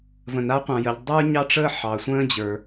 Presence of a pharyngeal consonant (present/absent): present